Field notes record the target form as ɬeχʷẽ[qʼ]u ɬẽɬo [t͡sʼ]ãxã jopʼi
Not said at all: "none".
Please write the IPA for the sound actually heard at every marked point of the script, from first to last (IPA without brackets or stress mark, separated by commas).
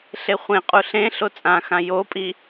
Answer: qʼ, t͡sʼ